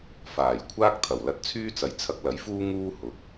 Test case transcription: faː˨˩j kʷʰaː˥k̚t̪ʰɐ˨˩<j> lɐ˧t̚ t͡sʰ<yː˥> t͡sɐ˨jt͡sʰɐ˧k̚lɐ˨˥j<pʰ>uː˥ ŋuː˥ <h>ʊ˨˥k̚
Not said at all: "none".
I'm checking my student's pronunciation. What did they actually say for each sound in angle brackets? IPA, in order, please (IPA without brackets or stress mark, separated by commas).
w, yː˥, f, h